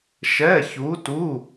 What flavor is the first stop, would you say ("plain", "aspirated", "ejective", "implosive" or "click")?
plain